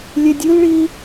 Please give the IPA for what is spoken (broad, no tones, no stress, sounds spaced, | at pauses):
lʲ ɛ dʲ ɯ l ɭ i